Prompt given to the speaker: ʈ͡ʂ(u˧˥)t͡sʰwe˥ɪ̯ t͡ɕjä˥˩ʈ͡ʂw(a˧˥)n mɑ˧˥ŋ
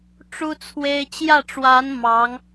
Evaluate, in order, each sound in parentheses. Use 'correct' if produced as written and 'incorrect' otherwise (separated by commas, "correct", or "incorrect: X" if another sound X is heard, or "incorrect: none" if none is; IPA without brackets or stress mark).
incorrect: u˥, correct